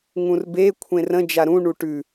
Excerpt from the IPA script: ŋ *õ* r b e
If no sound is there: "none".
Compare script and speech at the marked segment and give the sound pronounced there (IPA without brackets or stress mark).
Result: ũ